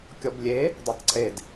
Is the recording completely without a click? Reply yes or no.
no